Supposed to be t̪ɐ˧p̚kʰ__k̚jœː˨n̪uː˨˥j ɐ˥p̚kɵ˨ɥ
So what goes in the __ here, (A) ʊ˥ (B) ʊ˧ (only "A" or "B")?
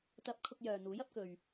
B